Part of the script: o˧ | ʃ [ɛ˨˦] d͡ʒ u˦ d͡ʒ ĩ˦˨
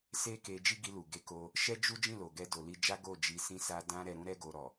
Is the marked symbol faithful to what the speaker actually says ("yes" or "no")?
no